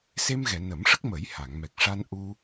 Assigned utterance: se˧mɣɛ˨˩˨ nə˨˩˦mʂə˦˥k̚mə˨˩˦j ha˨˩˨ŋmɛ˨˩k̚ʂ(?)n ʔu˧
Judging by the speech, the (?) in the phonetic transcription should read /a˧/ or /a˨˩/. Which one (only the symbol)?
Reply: a˧